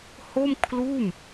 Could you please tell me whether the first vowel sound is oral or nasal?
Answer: oral